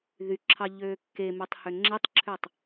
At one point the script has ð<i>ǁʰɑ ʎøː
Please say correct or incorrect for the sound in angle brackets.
incorrect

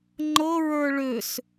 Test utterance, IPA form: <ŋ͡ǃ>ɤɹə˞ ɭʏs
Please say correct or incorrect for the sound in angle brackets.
correct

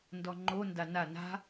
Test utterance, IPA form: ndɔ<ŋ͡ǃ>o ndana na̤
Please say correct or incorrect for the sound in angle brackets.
correct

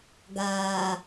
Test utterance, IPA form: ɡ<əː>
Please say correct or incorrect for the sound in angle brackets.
incorrect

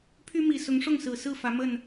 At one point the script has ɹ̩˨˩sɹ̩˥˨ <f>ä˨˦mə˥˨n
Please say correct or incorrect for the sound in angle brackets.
correct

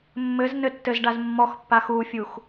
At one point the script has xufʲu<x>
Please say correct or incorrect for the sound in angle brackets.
correct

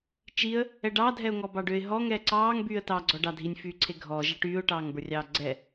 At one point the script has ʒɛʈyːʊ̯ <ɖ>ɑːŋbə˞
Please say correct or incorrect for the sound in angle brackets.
incorrect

